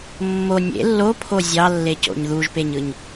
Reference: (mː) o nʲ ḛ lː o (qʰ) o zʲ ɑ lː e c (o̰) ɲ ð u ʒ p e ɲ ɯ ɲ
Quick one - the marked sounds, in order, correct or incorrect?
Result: correct, incorrect: pʰ, correct

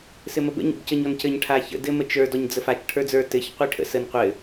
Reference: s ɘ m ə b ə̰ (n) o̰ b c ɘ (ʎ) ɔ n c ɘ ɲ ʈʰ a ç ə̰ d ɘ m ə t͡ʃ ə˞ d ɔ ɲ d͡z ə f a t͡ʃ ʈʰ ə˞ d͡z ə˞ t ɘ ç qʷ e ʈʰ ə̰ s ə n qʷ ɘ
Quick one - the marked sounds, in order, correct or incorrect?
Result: incorrect: ɲ, incorrect: ɲ

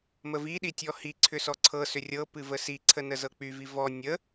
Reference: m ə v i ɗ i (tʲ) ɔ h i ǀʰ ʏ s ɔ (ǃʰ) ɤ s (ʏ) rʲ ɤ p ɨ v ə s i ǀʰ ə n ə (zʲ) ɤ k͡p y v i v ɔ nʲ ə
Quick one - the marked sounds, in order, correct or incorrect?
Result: correct, incorrect: ǀʰ, correct, incorrect: z

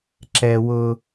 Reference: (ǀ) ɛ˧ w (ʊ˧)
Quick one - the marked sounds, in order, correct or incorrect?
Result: incorrect: ǁ, correct

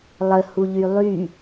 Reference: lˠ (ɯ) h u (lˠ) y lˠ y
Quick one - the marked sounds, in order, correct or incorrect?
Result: incorrect: ə, incorrect: ʎ

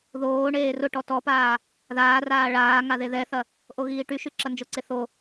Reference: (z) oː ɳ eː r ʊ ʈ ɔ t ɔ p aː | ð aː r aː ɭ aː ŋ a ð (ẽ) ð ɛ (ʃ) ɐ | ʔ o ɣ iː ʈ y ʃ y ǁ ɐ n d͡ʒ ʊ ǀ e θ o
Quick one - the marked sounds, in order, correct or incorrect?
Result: incorrect: ð, incorrect: e, incorrect: θ

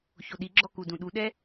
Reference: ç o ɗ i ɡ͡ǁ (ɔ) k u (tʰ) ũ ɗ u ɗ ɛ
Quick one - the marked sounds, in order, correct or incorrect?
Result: correct, incorrect: d

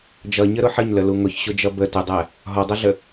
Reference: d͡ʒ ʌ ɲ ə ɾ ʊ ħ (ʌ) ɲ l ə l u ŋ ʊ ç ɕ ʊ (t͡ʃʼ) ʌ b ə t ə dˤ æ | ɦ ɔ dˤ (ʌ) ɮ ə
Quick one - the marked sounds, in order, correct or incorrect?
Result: incorrect: ə, incorrect: d͡ʒ, correct

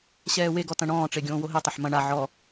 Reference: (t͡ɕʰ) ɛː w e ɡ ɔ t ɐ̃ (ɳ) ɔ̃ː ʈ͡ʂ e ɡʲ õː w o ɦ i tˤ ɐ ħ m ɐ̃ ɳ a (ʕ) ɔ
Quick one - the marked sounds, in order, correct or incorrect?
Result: incorrect: ɕ, correct, correct

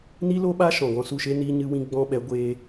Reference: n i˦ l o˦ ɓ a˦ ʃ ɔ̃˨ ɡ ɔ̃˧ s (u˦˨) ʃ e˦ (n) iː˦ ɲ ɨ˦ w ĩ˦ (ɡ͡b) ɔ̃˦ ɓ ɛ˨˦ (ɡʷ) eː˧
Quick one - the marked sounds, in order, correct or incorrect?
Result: correct, correct, correct, correct

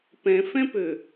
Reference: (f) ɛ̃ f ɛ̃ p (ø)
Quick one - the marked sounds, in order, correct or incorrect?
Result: incorrect: p, correct

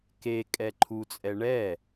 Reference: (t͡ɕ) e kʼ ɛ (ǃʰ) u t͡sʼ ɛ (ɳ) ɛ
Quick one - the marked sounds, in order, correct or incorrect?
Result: incorrect: k, correct, correct

